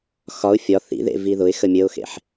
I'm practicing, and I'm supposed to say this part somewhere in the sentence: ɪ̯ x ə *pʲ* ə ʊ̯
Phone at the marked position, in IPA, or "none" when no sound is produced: mʲ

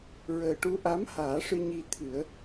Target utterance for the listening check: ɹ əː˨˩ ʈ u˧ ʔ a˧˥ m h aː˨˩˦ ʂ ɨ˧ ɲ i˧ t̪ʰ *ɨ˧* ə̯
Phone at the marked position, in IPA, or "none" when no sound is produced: ɨ˨˩˦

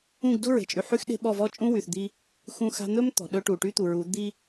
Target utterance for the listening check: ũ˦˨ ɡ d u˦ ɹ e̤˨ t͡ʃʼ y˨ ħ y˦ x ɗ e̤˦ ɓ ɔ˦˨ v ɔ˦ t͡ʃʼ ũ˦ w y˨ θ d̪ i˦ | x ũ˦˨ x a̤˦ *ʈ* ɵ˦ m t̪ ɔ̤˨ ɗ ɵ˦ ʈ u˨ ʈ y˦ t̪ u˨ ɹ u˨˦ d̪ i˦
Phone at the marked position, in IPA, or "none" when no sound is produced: n̪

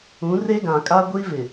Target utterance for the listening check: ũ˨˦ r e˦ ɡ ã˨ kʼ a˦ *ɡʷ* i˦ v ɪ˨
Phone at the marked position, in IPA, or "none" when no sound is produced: ɡʷ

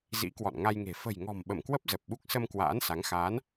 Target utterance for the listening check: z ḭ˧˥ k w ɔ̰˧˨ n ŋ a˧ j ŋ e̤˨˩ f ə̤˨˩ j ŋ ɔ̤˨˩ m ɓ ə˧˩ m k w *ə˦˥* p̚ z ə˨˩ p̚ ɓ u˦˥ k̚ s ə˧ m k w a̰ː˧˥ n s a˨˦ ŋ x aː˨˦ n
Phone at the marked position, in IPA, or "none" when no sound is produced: ə˦˥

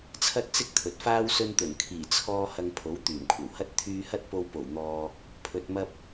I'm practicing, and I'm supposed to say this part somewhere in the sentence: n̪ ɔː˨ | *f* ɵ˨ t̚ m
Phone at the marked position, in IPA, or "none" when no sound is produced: pʰ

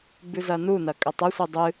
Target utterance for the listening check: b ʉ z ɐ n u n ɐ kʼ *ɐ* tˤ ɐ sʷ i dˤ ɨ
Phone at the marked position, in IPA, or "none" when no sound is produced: ɐ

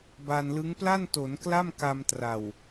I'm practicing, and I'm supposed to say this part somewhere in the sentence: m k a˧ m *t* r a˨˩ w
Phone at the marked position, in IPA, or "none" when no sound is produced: t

